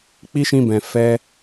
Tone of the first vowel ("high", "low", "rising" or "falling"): high